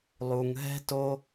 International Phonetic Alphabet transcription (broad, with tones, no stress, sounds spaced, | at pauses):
lˠ u˨ ŋ ɦ ɛ̤˧ t o˧